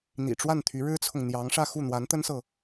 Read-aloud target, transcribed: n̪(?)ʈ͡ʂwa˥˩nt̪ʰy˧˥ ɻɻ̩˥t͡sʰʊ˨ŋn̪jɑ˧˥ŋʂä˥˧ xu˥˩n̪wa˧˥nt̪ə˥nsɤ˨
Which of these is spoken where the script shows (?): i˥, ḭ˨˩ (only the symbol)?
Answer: ḭ˨˩